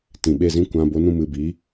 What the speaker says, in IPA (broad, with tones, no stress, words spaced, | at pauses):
tĩ˨ɓe˦˨zĩ˦kʷã˧ bo˧nũ˧mɨ˨ bi˨˦